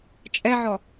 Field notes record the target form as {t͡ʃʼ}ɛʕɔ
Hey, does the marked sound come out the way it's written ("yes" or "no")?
yes